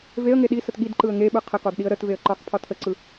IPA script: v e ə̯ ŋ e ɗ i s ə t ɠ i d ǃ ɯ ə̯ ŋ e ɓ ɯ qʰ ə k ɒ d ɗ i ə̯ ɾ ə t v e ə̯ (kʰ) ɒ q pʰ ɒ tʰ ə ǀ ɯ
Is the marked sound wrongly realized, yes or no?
yes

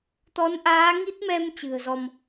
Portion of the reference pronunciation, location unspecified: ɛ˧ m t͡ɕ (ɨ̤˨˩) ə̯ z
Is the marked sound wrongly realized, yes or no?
no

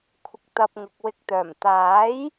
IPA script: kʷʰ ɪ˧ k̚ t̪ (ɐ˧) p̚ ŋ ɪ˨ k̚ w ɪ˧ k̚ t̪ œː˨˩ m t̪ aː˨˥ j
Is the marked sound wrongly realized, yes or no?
no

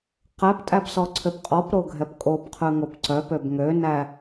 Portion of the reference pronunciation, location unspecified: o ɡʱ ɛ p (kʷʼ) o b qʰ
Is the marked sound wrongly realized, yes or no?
yes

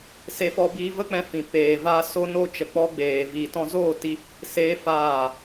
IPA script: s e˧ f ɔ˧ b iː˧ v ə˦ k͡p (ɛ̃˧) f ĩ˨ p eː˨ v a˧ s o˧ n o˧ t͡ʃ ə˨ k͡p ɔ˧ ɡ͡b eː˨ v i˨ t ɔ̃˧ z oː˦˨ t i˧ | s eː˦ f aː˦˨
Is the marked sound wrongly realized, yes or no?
no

